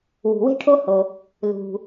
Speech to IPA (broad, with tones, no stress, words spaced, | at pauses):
wṳ˩we̤˥ʈʰo˥ho˩ | lṳ˩